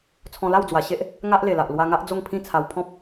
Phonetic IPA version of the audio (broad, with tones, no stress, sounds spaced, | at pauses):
t͡sʰ ɔ̃˧ l a˥˧ w d͡z w a˨˩ ɕ e˦ ʔ | ŋ a˦ ʔ l e˨˩ l a˨ ʔ l w a˧ ŋ a˦ ʔ d͡z o˥˧ ŋ pʰ ĩ˥˧ t͡sʰ a˧ w pʰ ɔ̃˦ p̚